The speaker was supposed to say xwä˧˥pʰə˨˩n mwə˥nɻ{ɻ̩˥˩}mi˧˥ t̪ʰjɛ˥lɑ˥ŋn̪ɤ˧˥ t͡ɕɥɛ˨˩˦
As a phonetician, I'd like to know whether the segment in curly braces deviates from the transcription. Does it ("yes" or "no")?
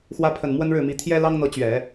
no